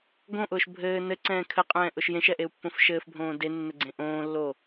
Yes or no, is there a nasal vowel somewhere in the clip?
yes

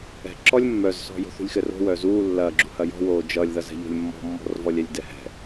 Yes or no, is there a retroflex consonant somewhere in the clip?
no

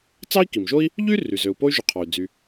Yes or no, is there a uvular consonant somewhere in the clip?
yes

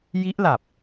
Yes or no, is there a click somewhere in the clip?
no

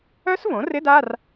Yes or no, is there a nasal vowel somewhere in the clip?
yes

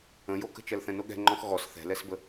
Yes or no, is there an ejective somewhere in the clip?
no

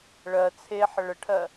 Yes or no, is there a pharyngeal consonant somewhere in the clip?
yes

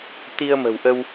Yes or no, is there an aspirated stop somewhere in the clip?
no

